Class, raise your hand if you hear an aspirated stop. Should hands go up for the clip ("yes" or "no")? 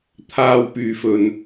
yes